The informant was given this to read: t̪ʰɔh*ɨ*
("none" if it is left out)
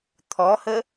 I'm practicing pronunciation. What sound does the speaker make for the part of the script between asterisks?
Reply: ə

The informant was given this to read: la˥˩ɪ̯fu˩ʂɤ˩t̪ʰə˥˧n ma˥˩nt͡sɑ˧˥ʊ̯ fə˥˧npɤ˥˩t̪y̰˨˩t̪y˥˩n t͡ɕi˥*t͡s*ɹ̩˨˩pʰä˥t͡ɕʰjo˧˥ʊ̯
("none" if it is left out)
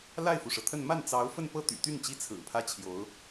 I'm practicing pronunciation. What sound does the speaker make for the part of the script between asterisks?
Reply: t͡sʰ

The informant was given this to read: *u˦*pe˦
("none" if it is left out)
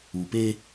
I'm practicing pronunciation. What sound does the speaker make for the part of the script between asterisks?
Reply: u˨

